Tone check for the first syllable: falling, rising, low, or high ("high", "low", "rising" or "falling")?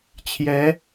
rising